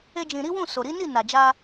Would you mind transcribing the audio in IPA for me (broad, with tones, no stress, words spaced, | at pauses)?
e˦d͡ʒĩ˧ ɾi˦wũ˦˨ so˨ ɾi˨˦ni˦˨ na˨d͡ʒa˧